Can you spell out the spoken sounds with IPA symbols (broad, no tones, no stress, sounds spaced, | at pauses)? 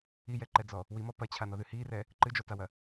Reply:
i j ɛ ǃ ɛ d͡z ɔ | w i m ɔ p ɐ t͡ɕʰ a n ɔ ð ɨ h i r ɛ | ǃ ɨ d͡ʒ ɔ t a w ɐ